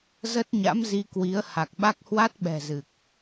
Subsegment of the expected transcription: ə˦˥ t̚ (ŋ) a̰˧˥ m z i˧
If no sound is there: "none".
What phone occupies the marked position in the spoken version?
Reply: ɲ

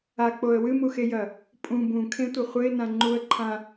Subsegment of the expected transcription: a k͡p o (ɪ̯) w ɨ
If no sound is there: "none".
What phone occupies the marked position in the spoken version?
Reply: ə̯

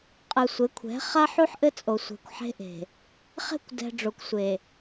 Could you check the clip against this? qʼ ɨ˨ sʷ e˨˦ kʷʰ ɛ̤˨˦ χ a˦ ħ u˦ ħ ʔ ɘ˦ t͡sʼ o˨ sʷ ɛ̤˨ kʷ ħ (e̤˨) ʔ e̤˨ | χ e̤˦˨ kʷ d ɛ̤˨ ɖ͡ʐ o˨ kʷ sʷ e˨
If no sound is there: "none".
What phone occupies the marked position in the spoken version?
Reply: e̤˦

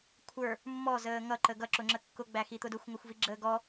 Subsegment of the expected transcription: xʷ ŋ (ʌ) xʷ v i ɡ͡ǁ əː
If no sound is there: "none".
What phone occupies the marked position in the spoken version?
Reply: ʌ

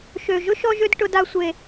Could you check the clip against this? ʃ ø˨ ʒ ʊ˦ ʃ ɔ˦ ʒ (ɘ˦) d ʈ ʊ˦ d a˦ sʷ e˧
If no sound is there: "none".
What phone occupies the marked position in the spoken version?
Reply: ø˦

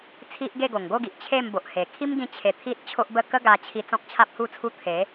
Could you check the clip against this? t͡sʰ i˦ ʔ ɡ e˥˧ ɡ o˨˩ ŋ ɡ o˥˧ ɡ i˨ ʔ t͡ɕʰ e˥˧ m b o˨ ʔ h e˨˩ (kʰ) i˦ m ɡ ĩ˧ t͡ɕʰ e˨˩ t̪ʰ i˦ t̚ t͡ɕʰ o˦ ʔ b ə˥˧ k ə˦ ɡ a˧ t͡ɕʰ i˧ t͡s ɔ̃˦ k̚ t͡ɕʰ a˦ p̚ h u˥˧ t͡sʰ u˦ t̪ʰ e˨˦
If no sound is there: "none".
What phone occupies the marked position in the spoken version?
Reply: kʰ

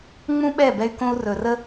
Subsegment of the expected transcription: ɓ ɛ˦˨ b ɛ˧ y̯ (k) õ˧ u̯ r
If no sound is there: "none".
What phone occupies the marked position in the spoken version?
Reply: k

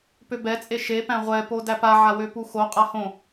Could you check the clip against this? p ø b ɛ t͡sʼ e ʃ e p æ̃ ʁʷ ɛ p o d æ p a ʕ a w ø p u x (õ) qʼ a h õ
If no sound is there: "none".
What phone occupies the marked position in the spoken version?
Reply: o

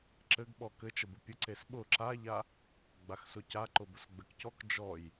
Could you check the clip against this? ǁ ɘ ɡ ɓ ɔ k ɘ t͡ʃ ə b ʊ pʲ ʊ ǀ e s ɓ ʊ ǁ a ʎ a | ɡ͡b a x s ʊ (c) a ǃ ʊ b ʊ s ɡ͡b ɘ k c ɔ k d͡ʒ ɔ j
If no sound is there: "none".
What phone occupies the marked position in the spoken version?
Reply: c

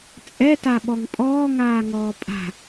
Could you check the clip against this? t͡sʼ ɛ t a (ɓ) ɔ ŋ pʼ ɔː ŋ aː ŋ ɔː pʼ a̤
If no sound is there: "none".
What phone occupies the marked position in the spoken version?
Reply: ɓ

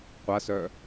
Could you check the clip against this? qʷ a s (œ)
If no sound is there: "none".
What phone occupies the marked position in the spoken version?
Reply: œ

